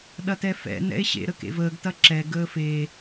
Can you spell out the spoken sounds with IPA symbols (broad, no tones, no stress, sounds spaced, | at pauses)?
ɗ ɐ t ɛ f ɛ̰ n ɛ̰ e̯ ɕ ḛ ɾ ə k ḛ v əː ɡ t ɐ ǁ ɛ ɡ əː f e